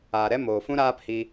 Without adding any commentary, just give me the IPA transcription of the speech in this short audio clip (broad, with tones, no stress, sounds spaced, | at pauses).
aː˨ ɾ ɛ˦ m oː˨ f ũ˦ ɾ aː˦ p h i˧